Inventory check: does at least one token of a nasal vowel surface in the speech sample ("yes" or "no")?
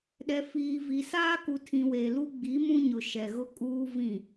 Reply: yes